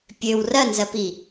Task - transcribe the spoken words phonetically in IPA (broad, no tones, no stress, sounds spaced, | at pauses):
pʲ ø w r ɐ n z ɐ p i